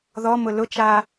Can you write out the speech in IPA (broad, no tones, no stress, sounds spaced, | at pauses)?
ð ɔ m ʊ l ʊ t͡ʃ a